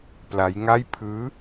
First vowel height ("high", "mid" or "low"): low